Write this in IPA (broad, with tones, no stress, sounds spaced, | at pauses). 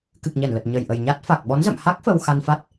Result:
k ɨ˨˩ k̚ ɲ ɛ˧˩ n l ə˨˩ t̚ ɲ ə˨˩ j ʔ ə˨˩ j ɲ a˦˥ t̚ f a˨˩ k̚ ɓ ɔ˨˦ n z ə̰˧˨ m h a˦˥ k̚ f ə˧ w x a˧ n f a˦˥ t̚